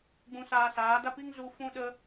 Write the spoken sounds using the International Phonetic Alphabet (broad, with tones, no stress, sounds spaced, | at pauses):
ɡ͡b ũ˧ s aː˧ s aː˨˦ d a˦ p i˦ ŋ z u˧ f ũ˦ ɗ ə˦